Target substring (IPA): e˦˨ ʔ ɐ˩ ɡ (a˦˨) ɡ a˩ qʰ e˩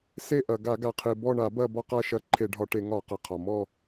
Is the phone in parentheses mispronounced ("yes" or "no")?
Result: yes